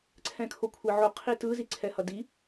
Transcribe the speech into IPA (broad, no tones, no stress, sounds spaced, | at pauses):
ǀʰ ɛ̃ kʰ o kʷʰ e ʕ o qʰ i t ɯ z i ǀʰ ɛ h ʌ d i